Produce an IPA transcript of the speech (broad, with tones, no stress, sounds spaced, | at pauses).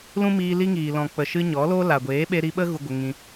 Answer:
l ũ˦ m iː˧ l i˦ ŋ iː˨ l ɔ̃˨ k͡p ə˨ ʃ ɨ˧ ɲ ɔ˨˦ l o˦ l a˨ ɡʷ eː˨˦ ɓ e˧ ɾ i˧ ɓ ə˦ ɣ u˧ ɡʷ ə˧ ŋ ĩ˧